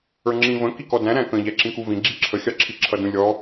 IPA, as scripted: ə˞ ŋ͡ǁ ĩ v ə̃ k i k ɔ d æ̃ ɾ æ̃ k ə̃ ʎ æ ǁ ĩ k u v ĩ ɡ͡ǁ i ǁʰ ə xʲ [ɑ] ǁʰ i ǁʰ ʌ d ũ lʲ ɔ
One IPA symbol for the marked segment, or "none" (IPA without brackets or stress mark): ɑ